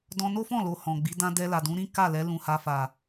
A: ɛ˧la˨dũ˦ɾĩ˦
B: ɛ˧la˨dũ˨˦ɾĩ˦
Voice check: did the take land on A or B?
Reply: B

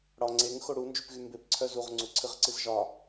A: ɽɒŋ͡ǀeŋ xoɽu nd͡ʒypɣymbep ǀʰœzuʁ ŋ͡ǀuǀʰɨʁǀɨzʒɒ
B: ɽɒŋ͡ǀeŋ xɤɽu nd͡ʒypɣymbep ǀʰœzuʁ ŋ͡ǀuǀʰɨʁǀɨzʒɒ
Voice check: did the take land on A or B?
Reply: A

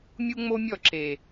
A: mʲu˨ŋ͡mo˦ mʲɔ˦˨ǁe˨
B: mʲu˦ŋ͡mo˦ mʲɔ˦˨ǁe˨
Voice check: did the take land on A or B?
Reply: B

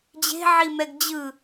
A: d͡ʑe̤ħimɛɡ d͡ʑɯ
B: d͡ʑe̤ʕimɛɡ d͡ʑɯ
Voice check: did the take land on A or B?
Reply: B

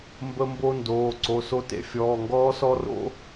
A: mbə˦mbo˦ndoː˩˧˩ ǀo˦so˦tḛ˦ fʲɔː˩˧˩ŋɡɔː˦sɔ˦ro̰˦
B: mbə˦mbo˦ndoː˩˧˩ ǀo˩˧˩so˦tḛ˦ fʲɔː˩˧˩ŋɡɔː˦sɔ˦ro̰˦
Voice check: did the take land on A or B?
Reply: B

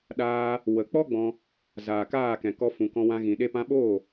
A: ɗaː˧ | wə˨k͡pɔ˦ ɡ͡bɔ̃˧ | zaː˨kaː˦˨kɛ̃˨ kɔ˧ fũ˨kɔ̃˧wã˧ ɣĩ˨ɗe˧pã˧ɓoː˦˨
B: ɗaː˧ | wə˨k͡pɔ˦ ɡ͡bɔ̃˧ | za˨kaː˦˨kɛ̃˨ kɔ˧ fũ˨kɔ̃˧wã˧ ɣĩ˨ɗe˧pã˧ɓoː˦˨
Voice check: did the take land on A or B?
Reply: A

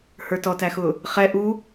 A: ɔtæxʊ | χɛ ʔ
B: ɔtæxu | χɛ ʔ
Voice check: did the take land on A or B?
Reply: A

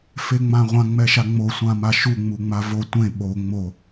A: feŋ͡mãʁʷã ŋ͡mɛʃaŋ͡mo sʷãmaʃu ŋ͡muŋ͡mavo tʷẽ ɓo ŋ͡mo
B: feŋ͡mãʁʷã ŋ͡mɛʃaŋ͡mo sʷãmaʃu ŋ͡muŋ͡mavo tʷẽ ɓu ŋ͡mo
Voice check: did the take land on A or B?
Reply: A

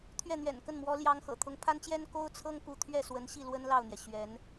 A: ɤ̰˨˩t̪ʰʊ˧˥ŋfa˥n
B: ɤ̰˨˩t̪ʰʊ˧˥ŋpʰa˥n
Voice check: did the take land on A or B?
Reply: B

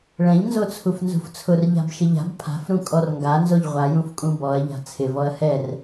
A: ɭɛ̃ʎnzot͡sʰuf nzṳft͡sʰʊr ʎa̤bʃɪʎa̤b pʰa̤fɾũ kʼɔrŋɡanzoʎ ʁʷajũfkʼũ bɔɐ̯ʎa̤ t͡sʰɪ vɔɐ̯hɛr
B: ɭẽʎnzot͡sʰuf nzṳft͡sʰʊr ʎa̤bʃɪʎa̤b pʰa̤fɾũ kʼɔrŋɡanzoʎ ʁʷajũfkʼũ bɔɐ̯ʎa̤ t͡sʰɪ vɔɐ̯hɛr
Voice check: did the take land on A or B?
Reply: A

